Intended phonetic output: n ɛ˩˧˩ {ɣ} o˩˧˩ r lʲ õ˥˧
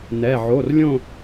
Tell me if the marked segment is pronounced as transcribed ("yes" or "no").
no